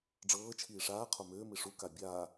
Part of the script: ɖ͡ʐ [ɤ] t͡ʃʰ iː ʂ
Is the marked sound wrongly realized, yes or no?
yes